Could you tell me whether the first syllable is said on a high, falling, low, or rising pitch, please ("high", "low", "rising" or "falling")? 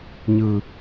low